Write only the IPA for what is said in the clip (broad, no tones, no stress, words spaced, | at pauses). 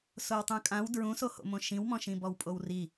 sowtˤũkʼãw dɹũsoho̰mõ ʃĩwmɔ̃ʃĩbɔw pʼowri